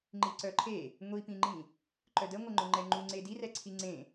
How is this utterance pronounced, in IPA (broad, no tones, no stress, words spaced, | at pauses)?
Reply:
ŋ͡ǃiǀœǃʰe | ŋʷipĩŋ͡ǃĩ | ǃœdəŋʷəŋ͡ǃʊ ŋ͡ǃɛŋ͡ǃuŋ͡ǀe dirɛǀʰi ŋ͡ǀẽ